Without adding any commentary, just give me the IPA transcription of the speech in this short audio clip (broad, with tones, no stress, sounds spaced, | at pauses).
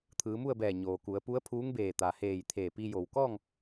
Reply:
t̪ʰ ɯː˩˧ m u˥˨ ə̯ b ɛː˧˩ ɲ oː˩ k u˩˧ ə̯ p u˧˥ ə̯ pʰ uː˧˥ ŋ b eː˧˩ t̪ a˩ h eː˧˩ j t̪ʰ eː˧˩ p i˧ j o˩ w k ɔː˥˨ ŋ